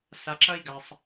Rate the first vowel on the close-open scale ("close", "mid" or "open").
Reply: open